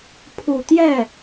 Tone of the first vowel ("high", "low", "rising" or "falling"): low